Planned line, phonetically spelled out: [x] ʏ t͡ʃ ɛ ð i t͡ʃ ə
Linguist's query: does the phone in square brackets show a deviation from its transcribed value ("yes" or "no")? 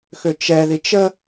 no